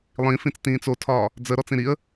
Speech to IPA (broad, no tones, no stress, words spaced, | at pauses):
lˠĩfĩt͡stĩːt͡s otʰɒː | d͡zəɾɔt͡sĩ ɾiə̯